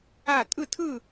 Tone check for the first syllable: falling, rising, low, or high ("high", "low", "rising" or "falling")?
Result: falling